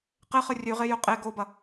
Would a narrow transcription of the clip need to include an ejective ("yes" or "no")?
yes